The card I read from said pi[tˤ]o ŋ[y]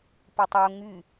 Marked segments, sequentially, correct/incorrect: correct, correct

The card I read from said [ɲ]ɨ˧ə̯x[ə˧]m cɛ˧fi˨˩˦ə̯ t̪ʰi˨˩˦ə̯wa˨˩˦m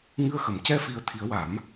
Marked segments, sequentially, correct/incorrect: incorrect: ŋ, incorrect: ə˨˩˨

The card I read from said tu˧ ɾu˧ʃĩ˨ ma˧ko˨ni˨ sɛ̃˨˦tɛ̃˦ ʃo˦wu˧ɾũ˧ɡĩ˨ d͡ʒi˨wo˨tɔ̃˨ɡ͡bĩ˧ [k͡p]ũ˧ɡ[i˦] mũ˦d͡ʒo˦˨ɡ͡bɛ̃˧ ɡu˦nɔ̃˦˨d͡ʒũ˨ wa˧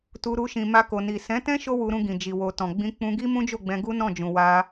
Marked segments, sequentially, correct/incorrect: correct, correct

